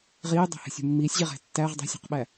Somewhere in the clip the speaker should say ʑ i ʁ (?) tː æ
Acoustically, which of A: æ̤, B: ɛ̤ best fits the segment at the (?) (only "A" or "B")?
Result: A